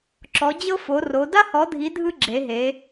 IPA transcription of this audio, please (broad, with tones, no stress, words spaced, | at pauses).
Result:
ǁɔ˨˦d͡ʑɤ˥fo˨˦ro˨˦ da˥hɔ˨˦dʱi˨˦ dʱɯ˥ ɡ͡ǁe˨˦ɦe˨˦